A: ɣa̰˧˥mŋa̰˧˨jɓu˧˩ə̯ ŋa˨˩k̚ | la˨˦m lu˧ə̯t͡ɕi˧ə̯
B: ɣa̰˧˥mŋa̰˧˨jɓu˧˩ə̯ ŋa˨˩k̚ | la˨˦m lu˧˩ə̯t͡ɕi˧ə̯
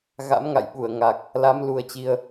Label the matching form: A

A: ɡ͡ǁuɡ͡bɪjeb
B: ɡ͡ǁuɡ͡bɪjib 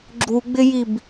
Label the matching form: B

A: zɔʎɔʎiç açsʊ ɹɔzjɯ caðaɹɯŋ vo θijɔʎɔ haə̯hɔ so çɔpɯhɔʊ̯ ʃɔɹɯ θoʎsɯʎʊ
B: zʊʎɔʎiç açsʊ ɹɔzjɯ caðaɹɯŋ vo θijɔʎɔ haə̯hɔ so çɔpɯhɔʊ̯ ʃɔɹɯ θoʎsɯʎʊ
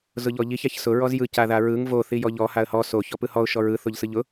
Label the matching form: B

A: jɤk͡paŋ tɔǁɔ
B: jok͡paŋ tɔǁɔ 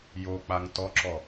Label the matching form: B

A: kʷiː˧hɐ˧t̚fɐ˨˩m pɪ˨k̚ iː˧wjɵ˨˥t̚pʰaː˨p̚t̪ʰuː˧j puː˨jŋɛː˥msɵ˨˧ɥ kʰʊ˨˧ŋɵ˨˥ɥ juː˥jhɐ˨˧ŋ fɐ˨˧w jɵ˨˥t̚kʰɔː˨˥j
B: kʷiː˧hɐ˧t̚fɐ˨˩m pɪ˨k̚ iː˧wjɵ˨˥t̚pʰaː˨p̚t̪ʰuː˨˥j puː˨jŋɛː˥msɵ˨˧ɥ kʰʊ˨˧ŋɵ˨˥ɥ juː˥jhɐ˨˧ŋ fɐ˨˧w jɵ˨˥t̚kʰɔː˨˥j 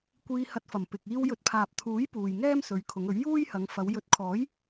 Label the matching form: B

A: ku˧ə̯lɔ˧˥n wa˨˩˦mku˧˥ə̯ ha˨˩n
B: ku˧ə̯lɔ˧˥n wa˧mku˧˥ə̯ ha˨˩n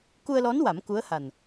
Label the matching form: A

